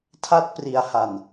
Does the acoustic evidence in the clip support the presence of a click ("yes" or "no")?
no